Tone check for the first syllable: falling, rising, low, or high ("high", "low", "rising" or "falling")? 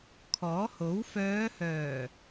rising